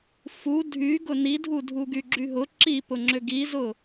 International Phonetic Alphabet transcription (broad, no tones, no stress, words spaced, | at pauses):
fu dʱy ɡʊnidʱu dʱuɡyɡ͡ǁyɦʊ ǁipʊŋ͡ǁʏ ɡizʊ